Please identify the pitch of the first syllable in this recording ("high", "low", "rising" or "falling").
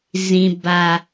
low